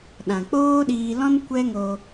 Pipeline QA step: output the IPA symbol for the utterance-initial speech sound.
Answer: ɗ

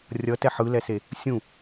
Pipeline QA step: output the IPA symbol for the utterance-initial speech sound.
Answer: rʲ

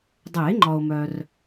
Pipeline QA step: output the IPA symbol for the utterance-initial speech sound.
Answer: dˤ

